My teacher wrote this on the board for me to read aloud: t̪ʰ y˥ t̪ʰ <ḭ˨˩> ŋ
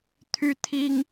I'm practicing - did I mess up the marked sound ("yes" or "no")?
yes